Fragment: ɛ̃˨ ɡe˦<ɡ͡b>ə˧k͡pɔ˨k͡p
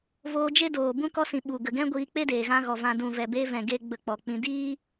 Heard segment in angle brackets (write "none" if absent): ɡ͡b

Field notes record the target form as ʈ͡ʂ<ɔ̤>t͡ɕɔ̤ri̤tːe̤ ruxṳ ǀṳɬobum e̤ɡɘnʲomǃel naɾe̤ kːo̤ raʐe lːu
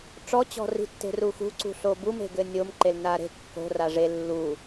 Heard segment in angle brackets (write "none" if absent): ɔ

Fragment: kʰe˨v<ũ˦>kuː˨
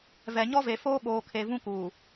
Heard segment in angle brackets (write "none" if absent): ũ˦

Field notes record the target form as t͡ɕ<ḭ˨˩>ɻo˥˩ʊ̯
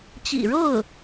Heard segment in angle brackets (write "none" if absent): ḭ˨˩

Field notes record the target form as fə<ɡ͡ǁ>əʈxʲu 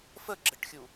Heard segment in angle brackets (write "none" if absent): ɡ͡ǁ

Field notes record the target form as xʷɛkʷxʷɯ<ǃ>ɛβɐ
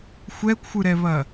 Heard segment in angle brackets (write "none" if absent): ɾ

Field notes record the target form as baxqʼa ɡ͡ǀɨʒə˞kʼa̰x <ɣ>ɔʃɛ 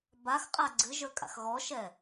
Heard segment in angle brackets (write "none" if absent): ɣ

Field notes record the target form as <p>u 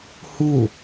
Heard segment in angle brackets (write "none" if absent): h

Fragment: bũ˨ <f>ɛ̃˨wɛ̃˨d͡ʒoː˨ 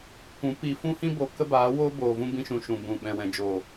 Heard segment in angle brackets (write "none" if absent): ɓ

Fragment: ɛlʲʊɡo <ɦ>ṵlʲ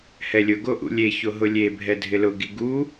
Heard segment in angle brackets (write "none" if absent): ʔ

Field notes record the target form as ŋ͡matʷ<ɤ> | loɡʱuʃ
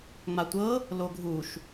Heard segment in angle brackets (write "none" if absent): ɤ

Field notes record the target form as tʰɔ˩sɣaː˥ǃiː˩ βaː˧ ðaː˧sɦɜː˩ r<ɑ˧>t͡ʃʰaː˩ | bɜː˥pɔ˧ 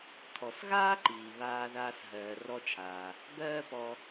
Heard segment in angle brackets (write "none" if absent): ɔ˧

